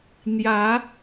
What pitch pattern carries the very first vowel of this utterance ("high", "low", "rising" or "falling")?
rising